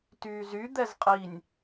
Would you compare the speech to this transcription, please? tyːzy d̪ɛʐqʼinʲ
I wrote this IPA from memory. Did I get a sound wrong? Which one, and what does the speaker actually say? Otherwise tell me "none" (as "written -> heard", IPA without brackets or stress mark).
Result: ʐ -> z